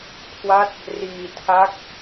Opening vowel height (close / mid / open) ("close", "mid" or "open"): open